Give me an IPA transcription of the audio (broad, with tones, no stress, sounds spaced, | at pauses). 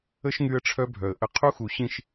ə˦ ʃ ŋ y˦ ə̯ ʈ͡ʂʰ œ˦ bʱ œ˨ ə̯ ʔ ə˦ qʰ u˦ x u˨ ɕ ĩ˦˨ ʃ